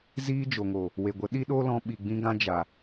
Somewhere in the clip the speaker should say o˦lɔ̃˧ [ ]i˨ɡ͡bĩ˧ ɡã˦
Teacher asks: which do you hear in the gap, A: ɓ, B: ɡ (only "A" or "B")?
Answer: A